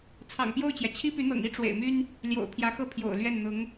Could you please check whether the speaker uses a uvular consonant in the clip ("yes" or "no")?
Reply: no